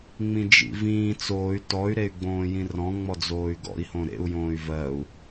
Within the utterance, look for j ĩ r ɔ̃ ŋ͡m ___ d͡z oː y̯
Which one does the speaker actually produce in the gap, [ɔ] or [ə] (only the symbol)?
ɔ